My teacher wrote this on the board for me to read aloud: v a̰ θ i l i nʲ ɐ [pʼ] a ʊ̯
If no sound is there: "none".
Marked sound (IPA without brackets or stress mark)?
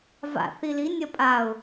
pʼ